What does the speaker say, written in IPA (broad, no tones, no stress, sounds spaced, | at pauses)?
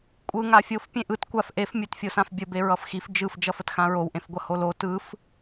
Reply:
kʷʼ ɯ ŋ a fʲ o f pʲ ẽ ʔ ɯ t kʷ a f ʔ e f mʲ ɵ t fʲ o s ã f bʲ ə b e ɹ ʌ f x i f d͡ʒ ɯ f d͡ʒ ʌ f ə t x ã ɹ o w ʔ ẽ f ɡʷ ʌ h o l o t ɯ f